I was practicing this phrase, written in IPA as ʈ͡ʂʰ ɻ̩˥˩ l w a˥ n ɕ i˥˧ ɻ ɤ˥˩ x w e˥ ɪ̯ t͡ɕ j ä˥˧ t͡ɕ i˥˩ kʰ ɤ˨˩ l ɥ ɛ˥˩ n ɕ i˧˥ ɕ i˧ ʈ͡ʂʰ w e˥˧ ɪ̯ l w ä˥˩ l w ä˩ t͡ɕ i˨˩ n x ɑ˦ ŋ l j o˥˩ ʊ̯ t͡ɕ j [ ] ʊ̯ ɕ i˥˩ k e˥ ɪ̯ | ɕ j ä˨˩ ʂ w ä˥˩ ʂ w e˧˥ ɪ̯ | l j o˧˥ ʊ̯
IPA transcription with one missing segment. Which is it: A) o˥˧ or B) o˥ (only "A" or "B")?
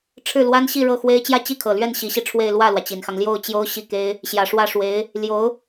B